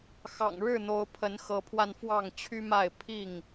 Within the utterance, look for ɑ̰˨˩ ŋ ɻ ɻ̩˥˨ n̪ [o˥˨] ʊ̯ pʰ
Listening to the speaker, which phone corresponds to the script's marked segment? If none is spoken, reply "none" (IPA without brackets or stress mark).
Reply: o˨˦